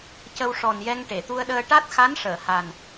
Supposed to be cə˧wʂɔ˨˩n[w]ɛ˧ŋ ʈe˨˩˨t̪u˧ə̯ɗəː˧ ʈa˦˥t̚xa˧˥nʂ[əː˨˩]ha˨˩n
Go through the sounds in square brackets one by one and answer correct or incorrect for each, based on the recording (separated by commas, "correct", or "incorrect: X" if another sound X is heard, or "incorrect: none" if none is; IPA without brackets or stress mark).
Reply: incorrect: j, incorrect: əː˨˩˨